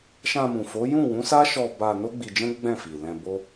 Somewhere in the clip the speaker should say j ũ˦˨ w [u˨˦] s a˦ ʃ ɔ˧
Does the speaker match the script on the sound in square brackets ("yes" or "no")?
no